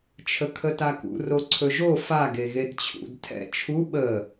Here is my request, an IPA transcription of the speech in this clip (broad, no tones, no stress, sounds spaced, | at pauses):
t͡ʃʰ ə kʰ ə t a k ṵ r o ǀʰ ɵ ʒ o f a ɡ e ɣ e d t͡ɕʰ ṵ d tʰ ɛ̰ t͡ʃʰ u ɓ ə